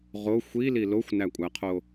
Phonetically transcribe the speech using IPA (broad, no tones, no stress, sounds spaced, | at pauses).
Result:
ʁ o xʷ i l i l o xʷ n æ kʷʼ æ qʰ o